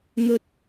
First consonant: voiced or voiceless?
voiced